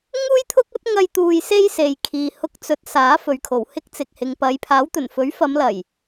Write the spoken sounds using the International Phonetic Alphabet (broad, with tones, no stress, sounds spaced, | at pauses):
ŋ uː˥ j t̪ʰ ʊ˥ k̚ ɐ˥ t̚ ŋ ɐ˧ j t̪ uː˧ j s e˥ j s e˨ j kʰ iː˨ h ʊ˧ k̚ t͡s ɵ˨˥ t̚ s aː˨˥ f ɵ˨ ɥ kʰ o˨˩ w h ɪ˥ k̚ t͡s ɪ˨ k̚ h ɪ˨ ŋ p ɐ˨˧ j pʰ aː˨˥ w t̪ ɵ˨˩ n f ɵ˨˥ ɥ f ɐ˨˧ m l ɐ˨˩ j